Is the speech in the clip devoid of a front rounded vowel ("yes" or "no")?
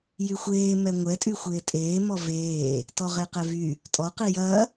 no